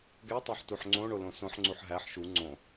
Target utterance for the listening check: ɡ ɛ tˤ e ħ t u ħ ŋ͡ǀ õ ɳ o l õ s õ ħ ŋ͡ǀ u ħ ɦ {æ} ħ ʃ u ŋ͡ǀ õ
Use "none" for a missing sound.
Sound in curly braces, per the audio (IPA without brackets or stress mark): æ